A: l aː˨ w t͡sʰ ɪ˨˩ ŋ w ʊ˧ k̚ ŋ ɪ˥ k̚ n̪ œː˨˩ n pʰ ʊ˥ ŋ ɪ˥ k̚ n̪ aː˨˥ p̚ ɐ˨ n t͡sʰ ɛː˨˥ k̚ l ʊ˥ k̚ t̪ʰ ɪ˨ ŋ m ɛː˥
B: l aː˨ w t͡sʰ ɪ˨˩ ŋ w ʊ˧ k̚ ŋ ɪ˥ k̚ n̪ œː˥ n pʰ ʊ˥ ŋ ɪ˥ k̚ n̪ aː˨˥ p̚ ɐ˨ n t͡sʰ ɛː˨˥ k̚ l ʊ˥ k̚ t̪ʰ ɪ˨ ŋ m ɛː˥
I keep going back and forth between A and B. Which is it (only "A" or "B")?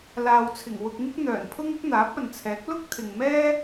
A